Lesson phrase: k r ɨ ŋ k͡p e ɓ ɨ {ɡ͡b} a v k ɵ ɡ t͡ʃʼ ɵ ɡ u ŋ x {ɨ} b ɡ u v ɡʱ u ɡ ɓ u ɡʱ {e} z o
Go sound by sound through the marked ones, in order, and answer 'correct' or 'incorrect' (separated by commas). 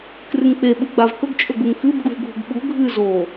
correct, correct, incorrect